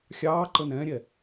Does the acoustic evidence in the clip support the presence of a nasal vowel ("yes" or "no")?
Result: yes